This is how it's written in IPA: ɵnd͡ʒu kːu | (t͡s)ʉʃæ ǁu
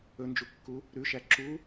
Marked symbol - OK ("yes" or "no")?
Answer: no